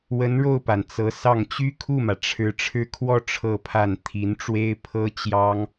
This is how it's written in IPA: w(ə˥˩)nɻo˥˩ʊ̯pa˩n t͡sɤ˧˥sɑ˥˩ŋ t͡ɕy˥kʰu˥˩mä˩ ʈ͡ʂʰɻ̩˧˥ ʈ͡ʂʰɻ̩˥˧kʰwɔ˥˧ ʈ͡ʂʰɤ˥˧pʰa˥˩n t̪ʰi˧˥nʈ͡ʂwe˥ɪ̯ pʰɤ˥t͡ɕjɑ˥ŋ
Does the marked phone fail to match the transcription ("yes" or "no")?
yes